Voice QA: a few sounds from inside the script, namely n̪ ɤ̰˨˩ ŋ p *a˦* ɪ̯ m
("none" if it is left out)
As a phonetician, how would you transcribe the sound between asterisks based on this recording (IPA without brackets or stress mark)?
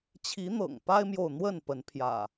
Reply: a˦